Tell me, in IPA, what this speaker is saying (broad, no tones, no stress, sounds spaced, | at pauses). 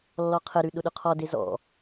lː ɔ qʰ ə ɾ ʉ ɗ ʊ ɗ ʊ qʰ ɔ d e z ɔ̰